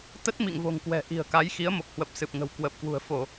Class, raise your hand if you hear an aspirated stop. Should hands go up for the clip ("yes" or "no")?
no